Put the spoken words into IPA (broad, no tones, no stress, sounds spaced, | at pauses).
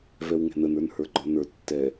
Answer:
v ɛ w ŋ ɛ̤ n ə n ə˞ n h ə˞ ɡ͡ǃ ɒ n ə˞ tː ɛ